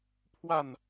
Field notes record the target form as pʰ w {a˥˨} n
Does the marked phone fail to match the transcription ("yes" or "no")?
no